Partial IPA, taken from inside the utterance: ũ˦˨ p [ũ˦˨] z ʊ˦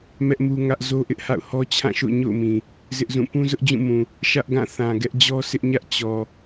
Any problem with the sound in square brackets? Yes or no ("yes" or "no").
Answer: yes